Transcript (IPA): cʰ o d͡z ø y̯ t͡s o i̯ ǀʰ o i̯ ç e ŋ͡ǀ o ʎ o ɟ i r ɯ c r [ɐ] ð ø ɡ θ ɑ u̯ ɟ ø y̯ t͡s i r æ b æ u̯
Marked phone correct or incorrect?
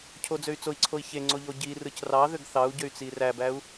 incorrect